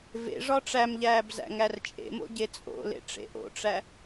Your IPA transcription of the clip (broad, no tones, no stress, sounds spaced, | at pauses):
v ḛ ʐ ɒ ʈ͡ʂ æ m ʎ æː b z æ̰ ŋ æ r t͡ʃʼ ḛ m o̰ ɟ e t͡sʼ o̰ l ḛ ʈ͡ʂ ḛ ʔ o̰ ʈ͡ʂ æ